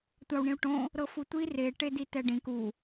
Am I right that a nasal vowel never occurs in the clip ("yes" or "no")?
no